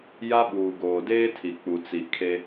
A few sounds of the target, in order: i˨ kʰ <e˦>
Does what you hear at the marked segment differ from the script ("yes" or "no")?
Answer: no